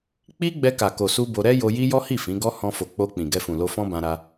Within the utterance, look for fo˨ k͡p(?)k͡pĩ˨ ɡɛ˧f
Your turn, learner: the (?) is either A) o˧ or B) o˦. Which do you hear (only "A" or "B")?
A